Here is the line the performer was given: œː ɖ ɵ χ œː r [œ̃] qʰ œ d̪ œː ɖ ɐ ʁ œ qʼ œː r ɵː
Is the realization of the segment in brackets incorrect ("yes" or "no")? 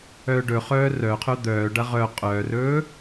yes